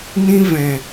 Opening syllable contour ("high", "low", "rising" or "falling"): high